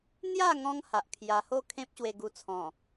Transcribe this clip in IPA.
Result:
n̪ j a˥˧ ŋ ɔ̃˧ ŋ h a˨ ʔ kʰ j a˧ h o˥˧ kʰ ẽ˦ p̚ ɕ w e˧ ɡ u˧ t͡sʰ ɔ̃˨˩

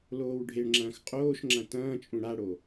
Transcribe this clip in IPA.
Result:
l oː w ɖʱ e ɳ ŋ͡ǁ ɐ̃ː x qʼ oː ʃ ŋ͡ǁ ɐ̃ t ɐ̃ː t͡ʃʼ ũ ɽ a ɽ o

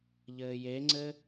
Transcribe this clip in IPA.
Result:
ʎ ɘː j e ŋ͡ǀ ɘ

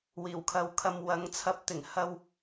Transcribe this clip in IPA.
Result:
w iː˨˩ w kʰ ɐ˨ w kʰ ɐ˨ m w ɐ˨˧ ŋ t͡sʰ ɐ˨˥ p̚ t̪ ɪ˨˩ ŋ h ɐ˧ w

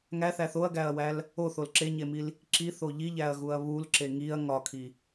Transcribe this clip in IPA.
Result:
ŋ æ θ æ θ o ɐ̯ ɡ æ ɐ̯ w æ l | o θ o l ǁ e ɲ e m i l | ǁ i θ o ʎ i ʎ æ ɐ̯ ɣ u ɐ̯ β u l ǁ e ŋ i ɐ̯ ŋ ɒ kʰ i

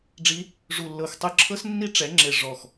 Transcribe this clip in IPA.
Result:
ɖ͡ʐ i˧˥ | ʐ u˧˩ lː ɤ˧˩ x tˤ ɯ˧˩ ǁʰ ɤ˧˥ s nː i˧˥ ʈ͡ʂ ɛ˩˥ ŋ͡ǁ e˧˩ ʐ ɔ˧˩ x

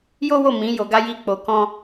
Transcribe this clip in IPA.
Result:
j o˦ w o˦˨ m ĩ˨˦ j o˧ ɡ a˦ j i˦ k͡p o˧ k ɔ̃˦

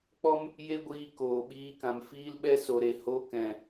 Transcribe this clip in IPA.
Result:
k͡p ɔ˦ m | j e˦ ɡʷ iː˧ k oː˨ ɓ iː˧ k ã˨ m f iː˧ l ɓ ɛ˧ s o˨ ɾ e˨ h o˧ k ɛ̃˨

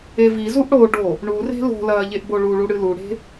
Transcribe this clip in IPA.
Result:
e v i z u ʔ ɽ o ɖ o | ɳ u r e̤ l o̤ l ɐː ʎ e ʔ b o ɭ u ɭ u ɽ ɨ l u ɽ e̤

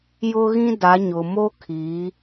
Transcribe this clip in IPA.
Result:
j ʊ˦ ɣ ĩ˦ d a˨˦ ɲ ʊ˨ m o˦ kʰ i˨˦

